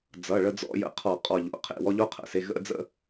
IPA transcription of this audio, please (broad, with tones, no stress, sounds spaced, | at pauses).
d͡z ʌ˩˧˩ ɭ ə˧ d͡z ɔ̰˧˥˧ j ə̰˧˩ qʰ ɔ˧˩˧ qʼ ɔ˧˩ ʎ o̰˩˧˩ qʰ ḛ˧˩ w ɔ˧ ʎ o˧˥˧ qʰ ə̰˩˧˩ s e˩˧˩ ɣ ə̰˧˥˧ d͡z ə̰˧